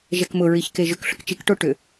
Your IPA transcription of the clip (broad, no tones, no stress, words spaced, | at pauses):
ʒɛkmʊɹiç keʒʏk ɬʊkt͡ʃikʈo ʈʏ